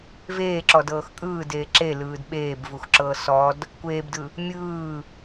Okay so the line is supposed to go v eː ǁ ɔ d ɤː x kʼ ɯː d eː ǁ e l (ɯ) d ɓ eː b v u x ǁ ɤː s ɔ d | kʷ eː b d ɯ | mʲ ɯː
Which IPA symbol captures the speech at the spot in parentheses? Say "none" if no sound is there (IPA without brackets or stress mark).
ɯː